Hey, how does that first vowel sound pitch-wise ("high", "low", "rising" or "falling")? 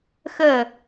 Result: falling